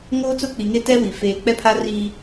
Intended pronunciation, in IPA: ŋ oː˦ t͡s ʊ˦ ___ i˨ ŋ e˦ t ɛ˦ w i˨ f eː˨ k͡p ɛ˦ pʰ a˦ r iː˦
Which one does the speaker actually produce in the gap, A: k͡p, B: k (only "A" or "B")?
A